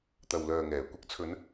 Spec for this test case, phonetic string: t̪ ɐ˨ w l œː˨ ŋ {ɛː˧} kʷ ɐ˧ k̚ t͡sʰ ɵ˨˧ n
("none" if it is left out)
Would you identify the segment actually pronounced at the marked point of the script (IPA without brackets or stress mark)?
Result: ɛː˨˩